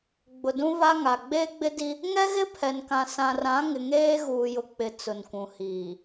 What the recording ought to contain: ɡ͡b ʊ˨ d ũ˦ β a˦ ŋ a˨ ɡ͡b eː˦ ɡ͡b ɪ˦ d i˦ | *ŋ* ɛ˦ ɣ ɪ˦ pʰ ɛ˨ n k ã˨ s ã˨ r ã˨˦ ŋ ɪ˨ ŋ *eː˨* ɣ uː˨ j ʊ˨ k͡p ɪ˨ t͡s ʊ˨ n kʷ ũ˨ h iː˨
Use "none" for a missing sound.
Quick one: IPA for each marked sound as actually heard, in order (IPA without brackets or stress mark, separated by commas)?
ŋ, eː˦